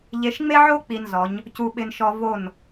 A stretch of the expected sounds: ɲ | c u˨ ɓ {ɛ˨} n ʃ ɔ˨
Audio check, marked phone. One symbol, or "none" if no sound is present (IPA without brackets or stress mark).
ɪ˨